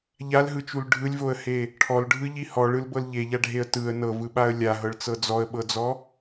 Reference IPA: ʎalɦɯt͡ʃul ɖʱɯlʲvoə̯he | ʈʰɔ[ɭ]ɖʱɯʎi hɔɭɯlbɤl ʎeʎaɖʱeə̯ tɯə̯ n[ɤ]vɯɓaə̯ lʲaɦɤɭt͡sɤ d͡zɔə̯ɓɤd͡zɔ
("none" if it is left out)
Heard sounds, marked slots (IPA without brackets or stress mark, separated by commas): l, ɤ